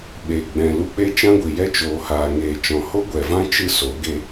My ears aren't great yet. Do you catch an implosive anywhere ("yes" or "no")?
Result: yes